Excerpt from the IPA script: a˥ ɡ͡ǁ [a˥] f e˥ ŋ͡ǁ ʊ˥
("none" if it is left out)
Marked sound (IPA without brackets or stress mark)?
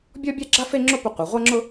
a˥